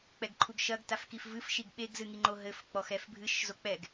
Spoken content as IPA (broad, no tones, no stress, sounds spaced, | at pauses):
k͡p ɛ ɡ ǃʰ u ɡ ʃ ɐ ɡ t a f k i f v ɨ f ʃ i ɡ ɓ e ɡ z ɨ ŋ i ŋ͡ǃ o ɦ ɘ f k͡p ɔ x ɛ f bʱ ɨ ʃ z o k͡p ɛ ɡ